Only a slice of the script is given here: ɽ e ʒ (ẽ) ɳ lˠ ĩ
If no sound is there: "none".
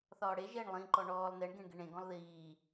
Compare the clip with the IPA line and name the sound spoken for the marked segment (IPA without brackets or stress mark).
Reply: e